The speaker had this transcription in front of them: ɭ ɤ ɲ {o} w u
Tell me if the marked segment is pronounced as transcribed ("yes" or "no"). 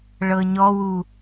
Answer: no